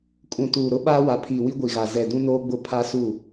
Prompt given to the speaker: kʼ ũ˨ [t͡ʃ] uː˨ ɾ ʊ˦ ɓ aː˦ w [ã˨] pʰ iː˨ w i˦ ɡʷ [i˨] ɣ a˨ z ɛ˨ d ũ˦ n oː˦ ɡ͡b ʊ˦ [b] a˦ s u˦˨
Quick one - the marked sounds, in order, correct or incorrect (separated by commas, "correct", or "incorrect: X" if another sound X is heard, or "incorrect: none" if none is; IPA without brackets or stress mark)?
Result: incorrect: t, incorrect: a˨, correct, incorrect: pʰ